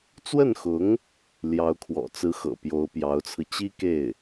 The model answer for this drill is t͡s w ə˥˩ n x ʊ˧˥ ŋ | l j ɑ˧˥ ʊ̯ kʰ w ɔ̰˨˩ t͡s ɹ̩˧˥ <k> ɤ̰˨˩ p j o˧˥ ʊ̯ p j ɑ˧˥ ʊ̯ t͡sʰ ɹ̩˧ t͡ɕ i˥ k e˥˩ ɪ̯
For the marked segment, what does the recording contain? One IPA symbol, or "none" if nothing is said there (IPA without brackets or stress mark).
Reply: x